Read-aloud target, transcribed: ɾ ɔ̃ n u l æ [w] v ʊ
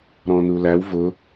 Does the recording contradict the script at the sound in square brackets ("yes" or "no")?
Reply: no